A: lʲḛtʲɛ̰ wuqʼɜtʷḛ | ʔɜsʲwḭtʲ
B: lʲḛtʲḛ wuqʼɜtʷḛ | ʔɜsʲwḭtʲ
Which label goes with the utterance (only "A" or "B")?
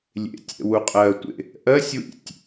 A